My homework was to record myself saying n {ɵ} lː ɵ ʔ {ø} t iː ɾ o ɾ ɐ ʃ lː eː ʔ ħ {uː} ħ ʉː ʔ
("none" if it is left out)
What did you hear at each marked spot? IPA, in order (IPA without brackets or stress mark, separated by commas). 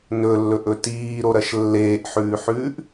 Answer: ɵ, ɵ, ʉː